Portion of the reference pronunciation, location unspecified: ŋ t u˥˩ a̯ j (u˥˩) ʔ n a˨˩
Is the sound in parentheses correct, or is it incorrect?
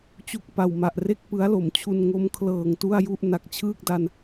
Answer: correct